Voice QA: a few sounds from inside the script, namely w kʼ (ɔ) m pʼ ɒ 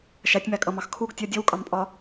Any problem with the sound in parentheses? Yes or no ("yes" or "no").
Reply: yes